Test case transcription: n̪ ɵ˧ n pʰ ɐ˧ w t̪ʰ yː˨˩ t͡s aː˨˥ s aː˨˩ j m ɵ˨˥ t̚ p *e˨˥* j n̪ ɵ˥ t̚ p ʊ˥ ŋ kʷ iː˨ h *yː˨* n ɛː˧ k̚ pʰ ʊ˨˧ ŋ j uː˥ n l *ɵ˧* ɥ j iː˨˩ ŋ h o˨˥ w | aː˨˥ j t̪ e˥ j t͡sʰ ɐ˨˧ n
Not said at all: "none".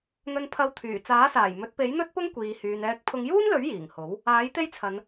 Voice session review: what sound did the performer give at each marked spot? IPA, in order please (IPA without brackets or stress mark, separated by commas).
e˨˥, yː˨, ɵ˨˥